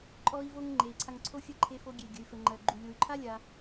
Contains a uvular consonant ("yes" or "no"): no